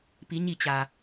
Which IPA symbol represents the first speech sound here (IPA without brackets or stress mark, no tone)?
p